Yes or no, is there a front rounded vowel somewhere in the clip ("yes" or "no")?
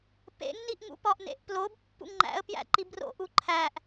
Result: no